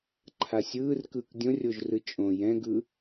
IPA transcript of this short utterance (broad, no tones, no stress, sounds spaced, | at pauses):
ǃʰ a sʲ ɯː r k ɯː k dʲ õ rʲ o ʒ r ɯ t͡ʃʼ õ j ɛ̃ ɡ ɯ